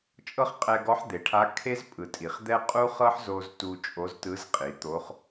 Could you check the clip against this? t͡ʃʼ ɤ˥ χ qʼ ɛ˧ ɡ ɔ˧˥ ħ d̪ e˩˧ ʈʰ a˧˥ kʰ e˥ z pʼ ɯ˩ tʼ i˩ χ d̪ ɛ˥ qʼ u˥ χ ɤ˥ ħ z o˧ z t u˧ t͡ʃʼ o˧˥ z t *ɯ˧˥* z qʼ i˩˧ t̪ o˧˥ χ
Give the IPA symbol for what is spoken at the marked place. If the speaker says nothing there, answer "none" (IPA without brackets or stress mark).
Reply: ɯ˧˥